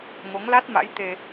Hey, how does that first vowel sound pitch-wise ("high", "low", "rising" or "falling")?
rising